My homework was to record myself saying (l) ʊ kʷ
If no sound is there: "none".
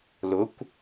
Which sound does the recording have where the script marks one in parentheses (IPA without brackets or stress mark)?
l